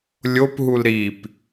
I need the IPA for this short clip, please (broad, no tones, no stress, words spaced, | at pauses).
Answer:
lʲopɦul ɾip